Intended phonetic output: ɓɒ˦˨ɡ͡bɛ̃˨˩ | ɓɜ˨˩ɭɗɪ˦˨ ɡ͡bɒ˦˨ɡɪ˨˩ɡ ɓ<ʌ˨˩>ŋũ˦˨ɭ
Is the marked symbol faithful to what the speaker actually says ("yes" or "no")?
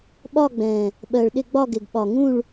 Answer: no